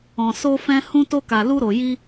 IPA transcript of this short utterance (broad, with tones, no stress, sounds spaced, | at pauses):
ɔ̃˨ s o˧ f ɛ̃˧ h ũ˧ t o˧ k a˨ l u˧ ɾ o˨ j i˧